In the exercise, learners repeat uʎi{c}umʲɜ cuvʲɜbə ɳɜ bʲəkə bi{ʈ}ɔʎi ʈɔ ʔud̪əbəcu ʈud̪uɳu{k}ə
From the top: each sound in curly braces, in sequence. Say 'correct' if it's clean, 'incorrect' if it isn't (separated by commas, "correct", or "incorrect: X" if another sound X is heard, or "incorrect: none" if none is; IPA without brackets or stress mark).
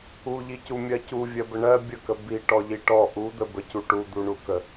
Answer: correct, correct, correct